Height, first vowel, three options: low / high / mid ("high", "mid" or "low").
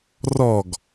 mid